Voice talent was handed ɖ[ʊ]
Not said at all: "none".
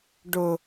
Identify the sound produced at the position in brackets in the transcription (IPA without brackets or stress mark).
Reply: ʊ